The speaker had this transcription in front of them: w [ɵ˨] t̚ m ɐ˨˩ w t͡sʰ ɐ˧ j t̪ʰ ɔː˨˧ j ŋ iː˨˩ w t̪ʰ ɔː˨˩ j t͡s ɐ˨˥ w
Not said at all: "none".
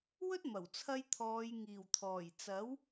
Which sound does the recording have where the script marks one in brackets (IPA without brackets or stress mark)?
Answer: ɵ˥